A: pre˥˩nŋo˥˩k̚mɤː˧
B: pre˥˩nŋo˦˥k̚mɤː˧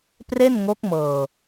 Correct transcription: B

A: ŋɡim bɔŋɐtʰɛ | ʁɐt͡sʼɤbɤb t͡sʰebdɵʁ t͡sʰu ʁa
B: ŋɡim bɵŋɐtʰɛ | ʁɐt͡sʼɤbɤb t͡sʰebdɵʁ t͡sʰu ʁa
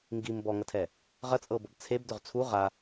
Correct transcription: A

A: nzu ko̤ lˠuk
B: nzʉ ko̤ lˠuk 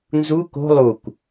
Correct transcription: A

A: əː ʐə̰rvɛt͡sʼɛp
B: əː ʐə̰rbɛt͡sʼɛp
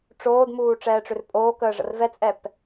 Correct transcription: A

